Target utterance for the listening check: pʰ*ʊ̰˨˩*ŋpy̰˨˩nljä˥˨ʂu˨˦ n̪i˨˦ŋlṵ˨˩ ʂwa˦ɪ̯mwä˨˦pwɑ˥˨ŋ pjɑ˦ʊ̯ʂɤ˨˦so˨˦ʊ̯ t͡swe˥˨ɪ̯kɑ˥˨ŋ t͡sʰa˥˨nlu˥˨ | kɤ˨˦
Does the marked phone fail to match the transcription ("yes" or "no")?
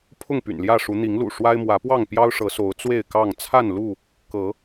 yes